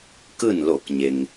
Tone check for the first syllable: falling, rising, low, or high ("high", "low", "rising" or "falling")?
falling